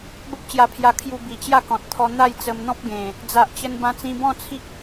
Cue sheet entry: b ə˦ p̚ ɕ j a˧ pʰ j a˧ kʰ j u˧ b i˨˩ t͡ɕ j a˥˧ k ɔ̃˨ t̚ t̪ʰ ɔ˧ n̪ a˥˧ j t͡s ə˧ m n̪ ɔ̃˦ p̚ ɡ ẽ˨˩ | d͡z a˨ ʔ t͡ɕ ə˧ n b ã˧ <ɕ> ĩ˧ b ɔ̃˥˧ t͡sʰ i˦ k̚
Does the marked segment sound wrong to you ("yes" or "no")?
yes